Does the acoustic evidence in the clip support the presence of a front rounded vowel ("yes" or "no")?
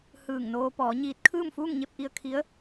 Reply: no